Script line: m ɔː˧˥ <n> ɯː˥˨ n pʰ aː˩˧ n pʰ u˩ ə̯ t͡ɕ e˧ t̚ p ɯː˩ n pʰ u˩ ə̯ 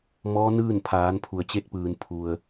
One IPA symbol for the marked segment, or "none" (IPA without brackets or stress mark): n